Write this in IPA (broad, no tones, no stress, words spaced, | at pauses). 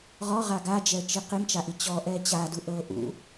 ʁɔʁa ɡad͡ʒɛə̯t͡ʃi qimt͡ʃaʔi t͡ɕɔʔɛ t͡ɕadu ʔɤ ʔṵ